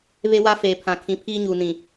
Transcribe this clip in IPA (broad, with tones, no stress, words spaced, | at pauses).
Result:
βe˦wa˦ feː˨pʰã˨kʰĩ˨˦pʰiː˦ ɲuː˨nĩ˨